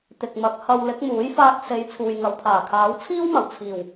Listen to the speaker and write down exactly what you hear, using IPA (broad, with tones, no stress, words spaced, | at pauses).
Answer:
t̪ɪ˨k̚mɐ˨˥k̚ hɐ˧w lɪ˨˥k̚muː˨˥jfaː˧k̚ se˨˧j t͡sʰuː˨jŋɐ˨wpʰaː˨˩kʰaː˨˥w t͡sʰiː˥wmɐ˨˩wt͡sʰiː˨˩w